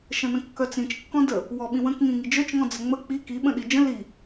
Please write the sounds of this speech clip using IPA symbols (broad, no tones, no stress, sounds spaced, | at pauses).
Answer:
ʃ ə̃ n ə̃ kː œ t͡s ĩ t͡ʃ kː ɔ̃ d ə | w ɔ ɓ ĩ w ə̃ k ŋ ĩ ŋ i d͡ʒ œ t͡ʃ ŋ ɔ̃ d͡z ə ŋ͡m ə k͡p i k i ɓ ə̃ ɗ i d͡ʒ ə̃ l i